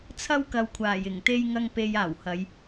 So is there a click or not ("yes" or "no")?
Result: no